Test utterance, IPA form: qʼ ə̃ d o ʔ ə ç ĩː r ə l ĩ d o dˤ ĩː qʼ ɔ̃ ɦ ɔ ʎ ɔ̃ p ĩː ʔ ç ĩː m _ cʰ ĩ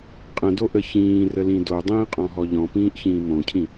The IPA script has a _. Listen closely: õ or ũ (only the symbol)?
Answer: õ